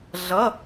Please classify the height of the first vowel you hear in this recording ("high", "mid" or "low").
mid